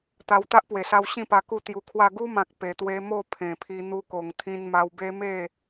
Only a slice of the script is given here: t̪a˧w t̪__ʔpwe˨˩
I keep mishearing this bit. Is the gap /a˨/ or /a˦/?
a˦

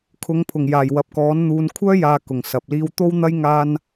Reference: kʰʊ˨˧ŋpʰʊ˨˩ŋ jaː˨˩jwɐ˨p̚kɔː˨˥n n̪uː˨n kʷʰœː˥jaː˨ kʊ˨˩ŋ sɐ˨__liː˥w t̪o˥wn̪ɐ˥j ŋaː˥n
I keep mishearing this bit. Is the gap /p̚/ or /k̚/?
p̚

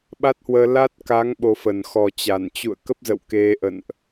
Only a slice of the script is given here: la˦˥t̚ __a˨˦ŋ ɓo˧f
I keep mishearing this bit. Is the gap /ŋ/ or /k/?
k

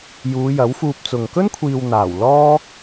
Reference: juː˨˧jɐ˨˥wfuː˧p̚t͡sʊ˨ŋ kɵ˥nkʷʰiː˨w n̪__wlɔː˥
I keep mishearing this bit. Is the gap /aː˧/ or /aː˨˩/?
aː˨˩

